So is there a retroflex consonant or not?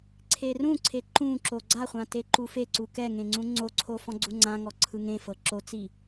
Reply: no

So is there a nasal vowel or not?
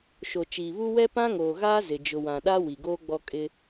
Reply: yes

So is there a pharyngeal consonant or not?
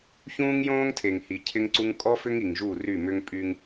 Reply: no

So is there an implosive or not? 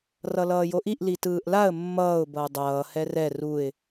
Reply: no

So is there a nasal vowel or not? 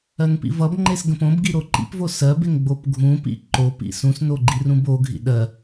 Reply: yes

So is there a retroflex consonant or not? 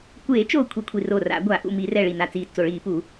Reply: yes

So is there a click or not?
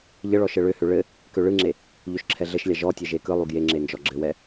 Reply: yes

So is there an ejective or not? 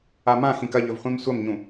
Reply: no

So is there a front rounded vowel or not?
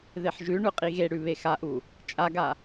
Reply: no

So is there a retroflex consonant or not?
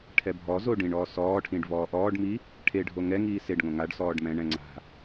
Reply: yes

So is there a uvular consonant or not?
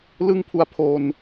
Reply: no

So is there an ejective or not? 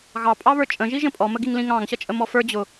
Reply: yes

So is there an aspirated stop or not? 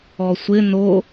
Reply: no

